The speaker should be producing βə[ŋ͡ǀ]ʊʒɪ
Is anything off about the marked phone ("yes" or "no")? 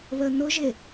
yes